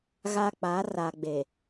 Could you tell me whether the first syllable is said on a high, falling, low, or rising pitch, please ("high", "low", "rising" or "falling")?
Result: high